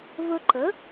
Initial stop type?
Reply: click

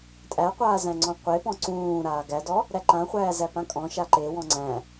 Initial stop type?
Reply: ejective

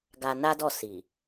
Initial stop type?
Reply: plain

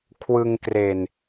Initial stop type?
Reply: aspirated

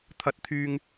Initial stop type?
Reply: aspirated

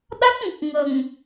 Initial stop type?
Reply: implosive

